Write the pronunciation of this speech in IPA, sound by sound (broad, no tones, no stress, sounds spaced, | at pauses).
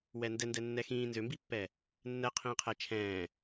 w ɛ n d ɛ n d ɛ nː ɛ x ĩː n z ø m b i pː ɛ | nː ɛ qʰ ĩː qʰ ɛ t͡ʃʰ ɛ̃ː